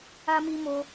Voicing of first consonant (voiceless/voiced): voiced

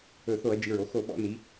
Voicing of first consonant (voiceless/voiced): voiceless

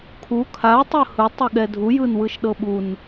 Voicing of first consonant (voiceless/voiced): voiceless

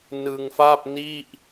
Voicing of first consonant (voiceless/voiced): voiced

